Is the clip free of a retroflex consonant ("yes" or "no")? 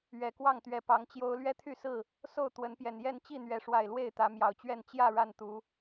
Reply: no